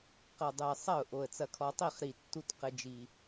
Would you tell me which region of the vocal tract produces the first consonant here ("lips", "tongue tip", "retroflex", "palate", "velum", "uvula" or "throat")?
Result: uvula